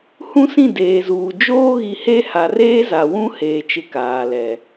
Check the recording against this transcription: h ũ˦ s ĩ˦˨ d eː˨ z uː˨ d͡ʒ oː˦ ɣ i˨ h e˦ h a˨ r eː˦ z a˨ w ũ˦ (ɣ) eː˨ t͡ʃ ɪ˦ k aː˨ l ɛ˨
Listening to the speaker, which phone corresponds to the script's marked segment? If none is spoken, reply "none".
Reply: h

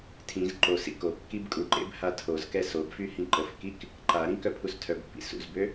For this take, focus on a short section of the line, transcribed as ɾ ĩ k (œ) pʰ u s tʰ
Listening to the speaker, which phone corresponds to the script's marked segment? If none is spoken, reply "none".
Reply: œ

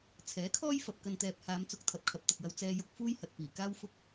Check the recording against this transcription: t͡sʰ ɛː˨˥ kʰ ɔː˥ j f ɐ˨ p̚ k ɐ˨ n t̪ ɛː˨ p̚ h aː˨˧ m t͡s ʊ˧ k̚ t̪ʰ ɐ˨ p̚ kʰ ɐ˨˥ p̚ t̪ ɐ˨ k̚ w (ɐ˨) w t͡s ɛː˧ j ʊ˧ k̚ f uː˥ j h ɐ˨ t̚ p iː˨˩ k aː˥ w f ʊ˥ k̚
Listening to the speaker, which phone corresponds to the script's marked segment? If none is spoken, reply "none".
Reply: ɐ˧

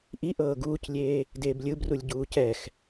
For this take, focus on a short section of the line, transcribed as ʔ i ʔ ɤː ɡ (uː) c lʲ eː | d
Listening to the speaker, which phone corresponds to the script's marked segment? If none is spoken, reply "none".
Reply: uː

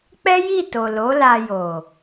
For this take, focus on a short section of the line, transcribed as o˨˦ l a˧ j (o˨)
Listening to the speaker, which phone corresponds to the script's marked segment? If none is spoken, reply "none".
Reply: o˨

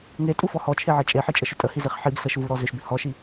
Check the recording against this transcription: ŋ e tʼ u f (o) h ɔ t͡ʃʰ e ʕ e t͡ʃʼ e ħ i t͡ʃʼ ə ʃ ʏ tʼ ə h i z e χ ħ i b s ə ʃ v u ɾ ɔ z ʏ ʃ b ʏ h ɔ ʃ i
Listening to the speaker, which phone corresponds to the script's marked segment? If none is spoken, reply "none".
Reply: ɔ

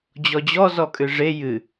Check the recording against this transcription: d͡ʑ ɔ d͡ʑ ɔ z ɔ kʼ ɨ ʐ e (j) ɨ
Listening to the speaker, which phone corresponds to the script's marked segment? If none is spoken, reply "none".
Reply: j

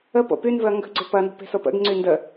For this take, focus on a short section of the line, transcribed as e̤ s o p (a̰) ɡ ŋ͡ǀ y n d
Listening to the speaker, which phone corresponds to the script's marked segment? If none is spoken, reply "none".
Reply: ə̰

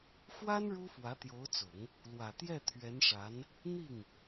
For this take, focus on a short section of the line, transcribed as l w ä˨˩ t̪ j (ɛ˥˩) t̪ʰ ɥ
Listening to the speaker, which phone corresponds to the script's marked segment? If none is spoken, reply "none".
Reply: ɛ˥˩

